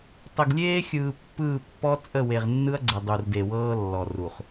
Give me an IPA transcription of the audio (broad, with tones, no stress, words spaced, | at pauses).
tˤə˨ɡlʲeː˦xʲɯː˨ pːɯː˦˨pːɔ˦ t͡sʼə˦˨we˨ʁnːɯ˦ɐ̯ɡ͡ǀə˨ dˤu˨rde˨wɤː˦ lːɔ˨ru˨χ